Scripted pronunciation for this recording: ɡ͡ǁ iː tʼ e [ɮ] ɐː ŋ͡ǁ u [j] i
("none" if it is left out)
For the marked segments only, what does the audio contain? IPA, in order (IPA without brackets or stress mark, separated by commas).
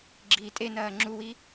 n, w